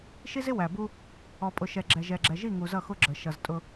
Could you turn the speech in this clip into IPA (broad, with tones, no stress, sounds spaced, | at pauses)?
ʃ i˦ z ɪ˦ w æ˨ b u˦ | ɔ˨ pʼ ʊ˨ ʃ ɛ˨ ɡ͡ǁ ɛ˨ ʒ ɛ˨ ɡ͡ǁ ɛ˨ ʒ i˦˨ ŋ u˨ z ʌ˦˨ x ʊ˦ ɡ͡ǁ ə˨ ʃ ʌ˨ z tʼ ʊ˦